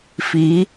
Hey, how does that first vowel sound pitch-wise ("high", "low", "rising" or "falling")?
rising